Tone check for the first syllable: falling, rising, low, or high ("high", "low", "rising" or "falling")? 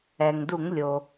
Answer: low